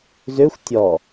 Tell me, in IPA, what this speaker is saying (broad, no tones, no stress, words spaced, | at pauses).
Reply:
zøxʷ tʲɔ